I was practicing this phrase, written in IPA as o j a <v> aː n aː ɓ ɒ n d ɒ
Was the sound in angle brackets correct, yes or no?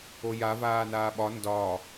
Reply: yes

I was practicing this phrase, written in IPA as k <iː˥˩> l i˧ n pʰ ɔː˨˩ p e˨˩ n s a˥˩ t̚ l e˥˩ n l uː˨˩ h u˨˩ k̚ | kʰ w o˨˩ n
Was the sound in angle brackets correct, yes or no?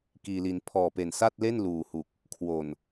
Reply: no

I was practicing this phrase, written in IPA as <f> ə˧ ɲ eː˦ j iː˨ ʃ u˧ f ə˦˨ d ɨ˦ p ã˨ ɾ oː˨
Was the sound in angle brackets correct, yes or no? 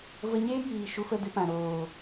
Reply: no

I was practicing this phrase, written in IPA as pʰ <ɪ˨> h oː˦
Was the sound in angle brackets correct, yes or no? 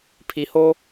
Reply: no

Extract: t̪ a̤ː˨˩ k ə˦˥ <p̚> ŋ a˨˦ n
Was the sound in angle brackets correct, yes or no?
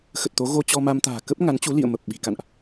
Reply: yes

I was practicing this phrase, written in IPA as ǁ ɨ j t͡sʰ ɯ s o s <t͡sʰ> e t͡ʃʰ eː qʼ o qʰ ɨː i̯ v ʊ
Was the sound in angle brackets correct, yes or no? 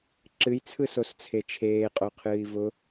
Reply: yes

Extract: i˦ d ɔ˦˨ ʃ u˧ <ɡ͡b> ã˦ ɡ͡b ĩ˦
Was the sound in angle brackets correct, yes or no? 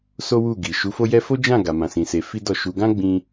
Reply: no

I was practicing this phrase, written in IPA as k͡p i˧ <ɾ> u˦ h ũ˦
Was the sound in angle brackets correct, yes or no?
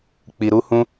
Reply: yes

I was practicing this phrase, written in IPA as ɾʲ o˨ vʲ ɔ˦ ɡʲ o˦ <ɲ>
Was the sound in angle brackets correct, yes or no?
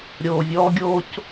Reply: no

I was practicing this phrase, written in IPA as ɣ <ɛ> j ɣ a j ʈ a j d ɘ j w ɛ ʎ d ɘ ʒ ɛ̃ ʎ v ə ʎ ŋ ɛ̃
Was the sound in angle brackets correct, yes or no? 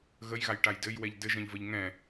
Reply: no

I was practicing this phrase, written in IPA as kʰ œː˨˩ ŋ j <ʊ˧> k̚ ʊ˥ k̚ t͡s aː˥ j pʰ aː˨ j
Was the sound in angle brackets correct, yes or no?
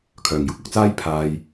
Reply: no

